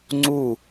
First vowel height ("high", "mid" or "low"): high